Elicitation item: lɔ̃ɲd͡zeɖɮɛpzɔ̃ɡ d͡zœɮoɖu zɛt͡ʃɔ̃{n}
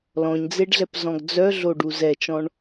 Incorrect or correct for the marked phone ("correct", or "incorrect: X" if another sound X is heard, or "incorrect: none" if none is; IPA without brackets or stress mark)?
incorrect: ɳ